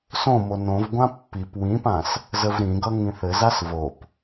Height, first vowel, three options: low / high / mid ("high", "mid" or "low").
mid